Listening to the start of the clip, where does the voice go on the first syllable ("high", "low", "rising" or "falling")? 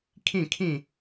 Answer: falling